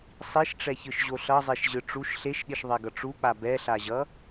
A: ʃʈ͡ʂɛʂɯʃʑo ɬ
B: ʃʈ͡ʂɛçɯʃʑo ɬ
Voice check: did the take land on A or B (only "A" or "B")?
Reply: B